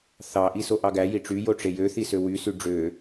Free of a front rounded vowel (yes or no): no